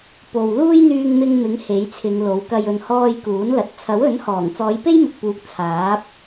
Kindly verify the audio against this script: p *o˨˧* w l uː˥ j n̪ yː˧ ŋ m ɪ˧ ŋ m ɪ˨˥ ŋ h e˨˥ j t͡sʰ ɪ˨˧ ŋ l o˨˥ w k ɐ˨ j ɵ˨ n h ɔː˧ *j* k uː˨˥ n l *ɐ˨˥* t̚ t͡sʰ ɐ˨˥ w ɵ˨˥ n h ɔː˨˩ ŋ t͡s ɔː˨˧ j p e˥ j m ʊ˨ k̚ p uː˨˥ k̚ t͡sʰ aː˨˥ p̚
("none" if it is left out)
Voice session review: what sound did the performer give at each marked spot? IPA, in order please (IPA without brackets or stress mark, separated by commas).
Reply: o˨, j, ɐ˨